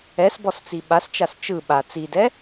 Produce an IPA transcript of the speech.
ɛ s b ɔ s t͡s i ɓ a s t͡ʃ a s t͡ʃ ɯ ɓ a t͡s i d ɛ

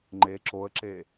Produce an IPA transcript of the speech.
ŋ͡ǃ e ǁ o ə̯ ǁ e

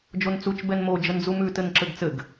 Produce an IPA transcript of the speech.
d͡ʒ o n t͡s u t͡ʃ b ɛ n m o d͡ʒ ə n d͡z u m ʉ t ɘ n ǁ ɘ ɡ t͡s ɘ ɡ

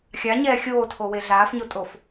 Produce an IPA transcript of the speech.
xʲ a ɲ ɛː xʲ oː tʰ o w e ɮ aː f ɲ o tʼ o f

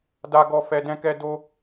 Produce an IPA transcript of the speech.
d a˦ ɡ ɔ˦ f ɛ˦ d ɛ̃˦ k ɛ˦ d o˦

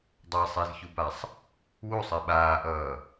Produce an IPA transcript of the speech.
dˤ a sˤ e z ç u b a sˤ | w u sˤ ɛ ɓ aː ʔ ʌː

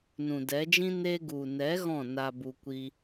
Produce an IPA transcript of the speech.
n ũ˨ d ɛ˨˦ d͡ʒ ĩ˦ n e˧ ɡ u˨ n ɛ˨˦ ɣ ɔ̃˦˨ n a˧ b u˧ kʷ i˧

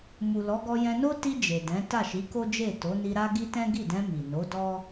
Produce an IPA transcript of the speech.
m u˨ l ɔ˨˦ ɡ ɔ˧ j ɛ̃˧ n o˦ t i˧ d͡ʒ e˨ d ɛ̃˨˦ t a˦˨ ʃ i˨˦ k o˦ d͡ʒ e˦˨ t o˨˦ n i˧ ɾ a˦ ɡ i˦ t ɛ̃˦ ɡ i˦˨ d ɛ̃˧ m i˨ n o˨˦ d ɔ˦

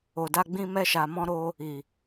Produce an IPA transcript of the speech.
o˨ d a˧ ɡ͡b ĩ˧ m ɛ˧ ʃ a˨ m ɔ̃˧ ɾ o˧ | i˨

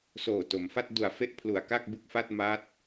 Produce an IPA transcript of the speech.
s oː˨˩ t o˩˦ m f a˥˩ t̚ d u˩˦ a̯ f e˦˥ ʔ pʰ l u˩˦ a̯ k a˥˩ k̚ b ɯ˥˩ k̚ f a˥˩ t̚ m a˦˥ t̚

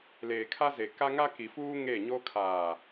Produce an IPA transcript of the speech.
l eː˨ kʰ a˦ z e˨ k a˦ ŋ a˦ k i˨ f uː˦ ŋ eː˦˨ ɲ oː˦ kʰ aː˨

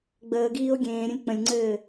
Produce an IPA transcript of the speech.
ɡ͡b əː ɡ iː o̯ ɡʲ ẽː ɾʲ ə̃ lʲ k͡p ə̃ lʲ ŋ͡ǀ ɘː

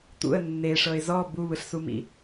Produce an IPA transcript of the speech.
t̪ ṵ ə̯ nː e ʂ ɤ ɪ̯ z ɔ b u β ɯ ɬ s u m ḭ

